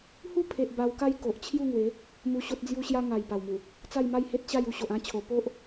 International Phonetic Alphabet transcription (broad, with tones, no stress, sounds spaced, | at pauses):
h u˦ pʰ e˨ ʔ b a˧ w k a˦ j k o˨ ʔ t͡ɕʰ j u˥˧ ŋ w e˨˦ | m u˧ ɕ o˦ t̚ d͡z j u˦ ɕ j a˦ ŋ a˨˩ j p a˨˩ w m u˨˩ | t͡s a˥˧ j m a˥˧ j h e˦ t̚ ɕ a˥˧ j u˧ ɕ o˨ ʔ ã˧ t͡ɕʰ o˨˩ p o˦ ʔ